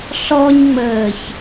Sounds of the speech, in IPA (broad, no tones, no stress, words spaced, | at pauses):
ɬɔɲŋ͡məːç